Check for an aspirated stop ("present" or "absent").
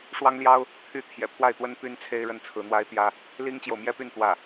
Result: present